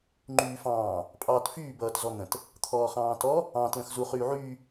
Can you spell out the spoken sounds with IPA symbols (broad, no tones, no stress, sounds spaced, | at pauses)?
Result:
ŋ͡ǃ yː f ɑ̃ː | pʼ ɑː t f yː b ʌː t z ɔ n̪ ə̃ t | t̪ʰ ɔː χ ɑ̃ː t ɔ | ɑ̃ t l ə̃ x z u χ yː ʕ yː